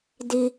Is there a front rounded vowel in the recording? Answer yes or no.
no